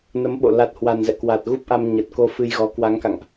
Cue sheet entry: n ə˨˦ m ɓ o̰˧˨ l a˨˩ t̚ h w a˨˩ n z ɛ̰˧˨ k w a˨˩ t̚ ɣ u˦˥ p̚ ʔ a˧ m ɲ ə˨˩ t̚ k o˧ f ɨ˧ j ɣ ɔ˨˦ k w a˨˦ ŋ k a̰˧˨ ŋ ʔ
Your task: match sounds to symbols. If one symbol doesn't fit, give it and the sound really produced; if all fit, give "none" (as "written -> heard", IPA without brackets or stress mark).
none